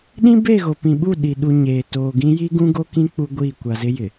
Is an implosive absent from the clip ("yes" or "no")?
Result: no